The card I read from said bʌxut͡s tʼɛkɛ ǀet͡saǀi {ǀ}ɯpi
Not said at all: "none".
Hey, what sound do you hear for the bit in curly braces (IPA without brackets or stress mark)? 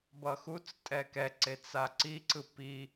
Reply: ǀ